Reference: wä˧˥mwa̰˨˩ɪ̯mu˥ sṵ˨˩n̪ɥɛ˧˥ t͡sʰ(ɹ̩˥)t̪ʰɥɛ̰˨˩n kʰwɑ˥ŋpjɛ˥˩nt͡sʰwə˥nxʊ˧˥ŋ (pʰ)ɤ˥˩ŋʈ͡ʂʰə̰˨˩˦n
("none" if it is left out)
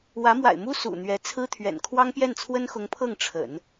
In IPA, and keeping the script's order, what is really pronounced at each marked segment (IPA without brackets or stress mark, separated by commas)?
ɹ̩˥, pʰ